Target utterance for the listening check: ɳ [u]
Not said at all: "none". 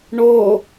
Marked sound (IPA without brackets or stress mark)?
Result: o